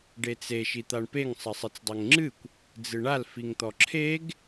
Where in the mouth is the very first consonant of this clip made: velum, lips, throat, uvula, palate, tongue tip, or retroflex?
retroflex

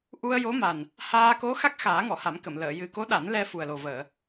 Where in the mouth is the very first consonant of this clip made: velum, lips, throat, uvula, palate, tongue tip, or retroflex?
throat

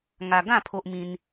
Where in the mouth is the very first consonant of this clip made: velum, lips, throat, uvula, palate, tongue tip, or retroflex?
velum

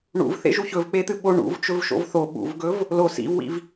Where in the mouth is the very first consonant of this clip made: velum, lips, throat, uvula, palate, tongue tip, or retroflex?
retroflex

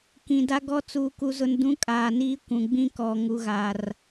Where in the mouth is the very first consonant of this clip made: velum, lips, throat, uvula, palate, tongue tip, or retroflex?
velum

